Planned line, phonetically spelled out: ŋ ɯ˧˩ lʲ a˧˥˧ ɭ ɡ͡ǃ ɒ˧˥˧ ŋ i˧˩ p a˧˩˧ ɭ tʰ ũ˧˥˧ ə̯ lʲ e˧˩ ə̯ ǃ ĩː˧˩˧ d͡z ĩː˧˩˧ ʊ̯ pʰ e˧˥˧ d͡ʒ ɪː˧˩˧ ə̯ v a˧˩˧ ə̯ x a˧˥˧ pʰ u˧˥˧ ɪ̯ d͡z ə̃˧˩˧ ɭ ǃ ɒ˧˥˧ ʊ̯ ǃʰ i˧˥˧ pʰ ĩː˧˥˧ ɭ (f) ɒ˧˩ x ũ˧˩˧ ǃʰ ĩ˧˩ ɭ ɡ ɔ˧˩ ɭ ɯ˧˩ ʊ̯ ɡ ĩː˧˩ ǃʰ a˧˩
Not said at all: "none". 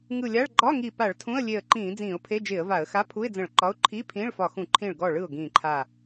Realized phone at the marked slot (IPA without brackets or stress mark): f